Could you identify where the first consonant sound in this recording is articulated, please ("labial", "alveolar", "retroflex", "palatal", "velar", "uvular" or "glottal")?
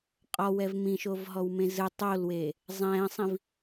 uvular